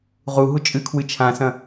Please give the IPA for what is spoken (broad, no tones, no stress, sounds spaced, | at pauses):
ʁ u ɦ u t͡ʃʼ ɨ kʰ w ɨ t͡ʃʰ ã s ɐ̃